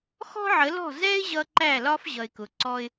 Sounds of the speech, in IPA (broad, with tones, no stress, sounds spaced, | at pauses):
x ɔ̤˦ ʕ ə˨˦ l ɔ̤˦˨ z ɛ˦ ɪ̯ ʑ ʌ˧ ǃ æ˦˨ l ɒ˦ f ʑ ʌ˨ ɪ̯ k ʊ˨ ǀ ɔ˦ ɪ̯